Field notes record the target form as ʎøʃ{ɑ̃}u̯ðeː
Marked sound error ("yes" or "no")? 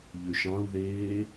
no